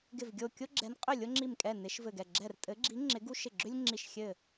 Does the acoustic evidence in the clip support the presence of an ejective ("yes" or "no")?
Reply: yes